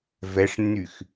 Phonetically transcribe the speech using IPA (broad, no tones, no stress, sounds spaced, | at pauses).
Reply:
v ɛ ʂ nː y x